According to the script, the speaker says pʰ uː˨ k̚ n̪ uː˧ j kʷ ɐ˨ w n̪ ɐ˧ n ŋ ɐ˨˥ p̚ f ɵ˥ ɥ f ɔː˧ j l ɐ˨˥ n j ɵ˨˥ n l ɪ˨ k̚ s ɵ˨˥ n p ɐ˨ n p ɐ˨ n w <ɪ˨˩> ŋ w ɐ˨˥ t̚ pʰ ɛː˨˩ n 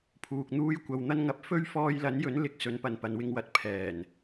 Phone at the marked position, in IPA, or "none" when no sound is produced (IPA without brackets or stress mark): ɪ˧